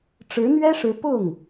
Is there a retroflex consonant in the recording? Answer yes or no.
yes